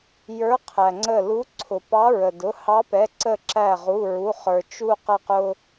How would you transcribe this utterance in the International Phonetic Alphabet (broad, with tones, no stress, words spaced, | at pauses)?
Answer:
jə˞˧˥ qʰæ˩ŋ͡ǀə˧˩lu˧˥ ǀʰʊ˩pɑ˧˥ ɹə˩dʊ˩˧˩ hɑ˧˥pɛ˩˧˩ǀə˧˩ ǁæ˧˩ ʁu˩˧˩ɹu˩˧˩χə˞˩ t͡ʃu˧ qʌ˧qʊ˧